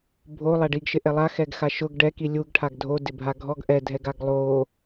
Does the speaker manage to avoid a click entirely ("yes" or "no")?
yes